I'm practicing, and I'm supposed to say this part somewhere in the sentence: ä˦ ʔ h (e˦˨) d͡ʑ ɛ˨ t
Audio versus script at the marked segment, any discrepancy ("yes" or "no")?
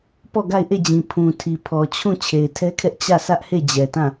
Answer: no